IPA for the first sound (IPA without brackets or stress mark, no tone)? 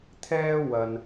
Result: t̪ʰ